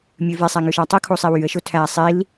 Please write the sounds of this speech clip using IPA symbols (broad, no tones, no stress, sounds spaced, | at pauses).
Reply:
mʲ ø v e sˤ æ ŋ ø ʃ ɑ tˤ u kʰ o sˤ i w y ə̯ ʃ o tʰ æ sˤ i l